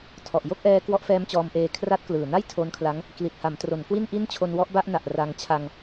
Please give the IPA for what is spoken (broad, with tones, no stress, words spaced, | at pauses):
tʰɔ˨˩ʔjo˥˩k̚ʔɛː˦˥ kwɔ˦˥ʔfɛː˦˥mt͡ɕɔː˧mʔeː˧ kʰra˦˥t̚klɯː˨˩na˥˩j tʰo˦˥nkʰla˦˥ŋ | kli˨˩t̚ha˩˦mtro˩˦n kwi˥˩nʔi˥˩n t͡ɕʰo˧nwɔ˦˥ʔba˥˩ʔna˨˩ʔ ra˧ŋ t͡ɕʰa˧ŋ